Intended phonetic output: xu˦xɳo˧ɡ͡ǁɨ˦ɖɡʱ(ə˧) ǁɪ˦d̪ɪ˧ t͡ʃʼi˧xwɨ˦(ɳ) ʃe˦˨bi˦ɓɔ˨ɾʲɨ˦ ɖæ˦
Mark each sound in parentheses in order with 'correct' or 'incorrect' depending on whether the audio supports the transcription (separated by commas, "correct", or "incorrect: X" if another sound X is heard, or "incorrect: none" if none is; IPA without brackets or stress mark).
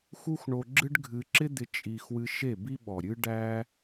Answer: incorrect: ɨ˧, incorrect: none